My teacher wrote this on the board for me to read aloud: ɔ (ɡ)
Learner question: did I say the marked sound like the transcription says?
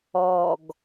yes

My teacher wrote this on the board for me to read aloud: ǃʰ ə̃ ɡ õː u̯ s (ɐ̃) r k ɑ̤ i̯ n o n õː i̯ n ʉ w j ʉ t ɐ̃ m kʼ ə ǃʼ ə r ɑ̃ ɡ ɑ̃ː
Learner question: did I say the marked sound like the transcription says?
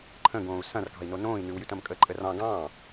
yes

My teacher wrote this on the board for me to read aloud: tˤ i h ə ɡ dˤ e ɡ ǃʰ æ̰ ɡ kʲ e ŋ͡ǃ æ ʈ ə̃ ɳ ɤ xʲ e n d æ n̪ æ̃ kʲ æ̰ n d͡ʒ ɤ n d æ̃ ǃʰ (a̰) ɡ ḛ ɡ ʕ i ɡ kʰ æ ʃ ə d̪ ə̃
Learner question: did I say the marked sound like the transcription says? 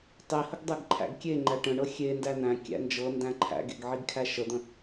no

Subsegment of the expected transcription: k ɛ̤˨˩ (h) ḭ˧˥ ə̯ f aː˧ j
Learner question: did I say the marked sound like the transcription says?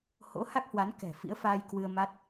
no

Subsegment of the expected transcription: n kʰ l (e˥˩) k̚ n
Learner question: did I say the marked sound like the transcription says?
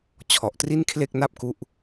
yes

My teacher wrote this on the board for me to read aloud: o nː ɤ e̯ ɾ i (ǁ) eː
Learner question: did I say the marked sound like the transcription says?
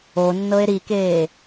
no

